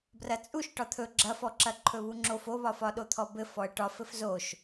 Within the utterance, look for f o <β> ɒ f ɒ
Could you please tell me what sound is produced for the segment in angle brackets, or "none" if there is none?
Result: β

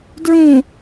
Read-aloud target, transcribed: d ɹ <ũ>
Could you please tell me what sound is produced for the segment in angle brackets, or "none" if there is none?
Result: ũ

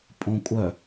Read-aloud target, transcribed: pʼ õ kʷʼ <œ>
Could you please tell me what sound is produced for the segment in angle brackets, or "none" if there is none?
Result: œ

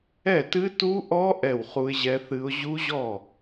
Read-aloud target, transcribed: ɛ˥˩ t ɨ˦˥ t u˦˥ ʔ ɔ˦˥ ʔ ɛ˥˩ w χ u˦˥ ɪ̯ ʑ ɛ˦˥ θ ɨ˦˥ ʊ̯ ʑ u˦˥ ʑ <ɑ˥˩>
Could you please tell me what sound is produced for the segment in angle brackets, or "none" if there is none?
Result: ɔ˥˩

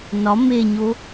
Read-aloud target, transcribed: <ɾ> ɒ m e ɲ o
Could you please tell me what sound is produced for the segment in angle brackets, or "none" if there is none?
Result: n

